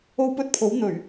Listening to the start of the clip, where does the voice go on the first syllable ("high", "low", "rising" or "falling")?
high